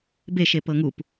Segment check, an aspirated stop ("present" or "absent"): absent